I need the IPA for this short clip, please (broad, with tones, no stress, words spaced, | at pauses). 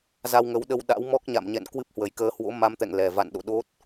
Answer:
za˧wŋə˨˦wɗə˧wɗa̰˧˥w mɔ˦˥k̚ɲa̰˧˨mɲɛ̰˧˨n kwɨ˦˥p̚hwə˨˩jkəː˧ hwo̰˧˥ma˧mt̪ɛ̰˧˨ŋ lɛ˨˩ va̰˧˨nɗo̰˧˨ ɗo˦˥t̚